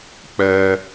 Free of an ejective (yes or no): yes